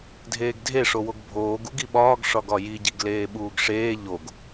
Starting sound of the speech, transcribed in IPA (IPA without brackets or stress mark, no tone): dʱ